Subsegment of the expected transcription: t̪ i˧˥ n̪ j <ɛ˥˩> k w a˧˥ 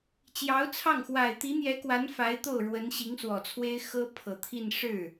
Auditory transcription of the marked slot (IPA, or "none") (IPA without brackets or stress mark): ɛ˧˥